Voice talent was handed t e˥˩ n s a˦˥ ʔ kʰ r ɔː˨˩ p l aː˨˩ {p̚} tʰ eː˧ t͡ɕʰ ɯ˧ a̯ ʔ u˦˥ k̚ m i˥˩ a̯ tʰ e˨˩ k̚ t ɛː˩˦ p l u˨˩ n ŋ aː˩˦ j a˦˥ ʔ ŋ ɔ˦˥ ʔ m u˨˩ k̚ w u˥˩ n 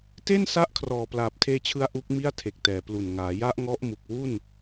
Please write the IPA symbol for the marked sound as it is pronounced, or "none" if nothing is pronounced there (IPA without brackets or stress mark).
p̚